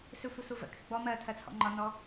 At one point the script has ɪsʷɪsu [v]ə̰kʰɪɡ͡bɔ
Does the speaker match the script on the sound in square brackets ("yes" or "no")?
yes